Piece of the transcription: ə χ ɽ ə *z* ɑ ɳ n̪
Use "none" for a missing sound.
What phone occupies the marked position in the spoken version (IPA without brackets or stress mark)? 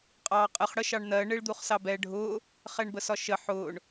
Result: ʃ